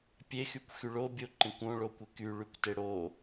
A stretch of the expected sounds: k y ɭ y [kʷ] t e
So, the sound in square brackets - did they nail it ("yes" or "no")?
yes